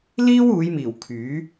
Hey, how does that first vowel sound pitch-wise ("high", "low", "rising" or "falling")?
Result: high